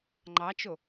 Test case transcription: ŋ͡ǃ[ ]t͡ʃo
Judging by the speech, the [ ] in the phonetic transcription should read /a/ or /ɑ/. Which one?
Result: ɑ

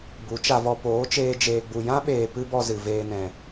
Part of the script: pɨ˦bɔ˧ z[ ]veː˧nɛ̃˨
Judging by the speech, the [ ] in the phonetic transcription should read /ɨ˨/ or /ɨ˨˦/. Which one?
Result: ɨ˨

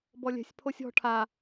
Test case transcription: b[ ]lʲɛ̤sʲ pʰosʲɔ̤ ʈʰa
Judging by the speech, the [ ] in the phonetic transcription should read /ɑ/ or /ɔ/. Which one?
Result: ɔ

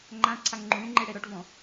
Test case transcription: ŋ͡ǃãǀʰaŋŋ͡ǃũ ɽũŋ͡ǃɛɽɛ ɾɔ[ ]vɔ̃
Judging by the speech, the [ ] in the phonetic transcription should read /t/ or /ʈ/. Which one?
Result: ʈ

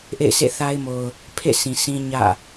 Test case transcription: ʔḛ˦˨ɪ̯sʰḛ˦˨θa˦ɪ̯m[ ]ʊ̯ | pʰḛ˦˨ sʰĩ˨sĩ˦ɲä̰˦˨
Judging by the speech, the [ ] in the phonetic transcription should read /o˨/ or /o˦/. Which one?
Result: o˨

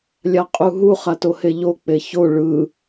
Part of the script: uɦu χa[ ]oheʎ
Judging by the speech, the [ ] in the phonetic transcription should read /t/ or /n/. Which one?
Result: t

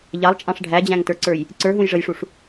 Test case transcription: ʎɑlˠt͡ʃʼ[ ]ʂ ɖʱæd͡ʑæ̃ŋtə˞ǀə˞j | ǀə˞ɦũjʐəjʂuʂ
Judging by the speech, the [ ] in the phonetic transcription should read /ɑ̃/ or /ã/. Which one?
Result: ɑ̃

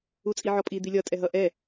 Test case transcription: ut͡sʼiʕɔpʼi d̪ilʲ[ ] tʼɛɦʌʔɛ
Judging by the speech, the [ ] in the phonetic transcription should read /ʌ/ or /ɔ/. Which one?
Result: ʌ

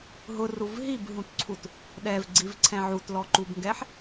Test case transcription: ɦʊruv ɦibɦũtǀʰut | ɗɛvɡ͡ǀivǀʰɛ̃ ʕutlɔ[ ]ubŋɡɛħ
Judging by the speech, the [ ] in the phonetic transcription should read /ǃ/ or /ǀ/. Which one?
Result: ǃ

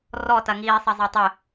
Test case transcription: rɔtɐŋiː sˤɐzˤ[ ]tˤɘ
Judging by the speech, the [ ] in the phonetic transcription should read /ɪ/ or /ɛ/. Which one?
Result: ɛ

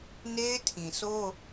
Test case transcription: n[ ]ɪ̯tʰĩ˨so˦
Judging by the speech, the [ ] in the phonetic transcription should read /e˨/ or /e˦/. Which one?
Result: e˦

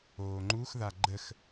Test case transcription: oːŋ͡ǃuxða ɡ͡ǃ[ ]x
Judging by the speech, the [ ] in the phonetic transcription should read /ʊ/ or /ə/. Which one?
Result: ə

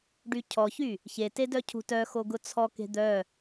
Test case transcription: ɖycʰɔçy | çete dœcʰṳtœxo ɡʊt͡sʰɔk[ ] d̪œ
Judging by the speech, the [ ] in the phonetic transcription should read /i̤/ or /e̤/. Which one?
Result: e̤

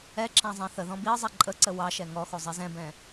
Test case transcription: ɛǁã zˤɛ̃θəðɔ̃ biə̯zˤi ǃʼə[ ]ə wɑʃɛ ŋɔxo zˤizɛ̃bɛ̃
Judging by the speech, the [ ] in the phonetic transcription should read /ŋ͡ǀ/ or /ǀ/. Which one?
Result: ǀ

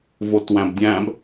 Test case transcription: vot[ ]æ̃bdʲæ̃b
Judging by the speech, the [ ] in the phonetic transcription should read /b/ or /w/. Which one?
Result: w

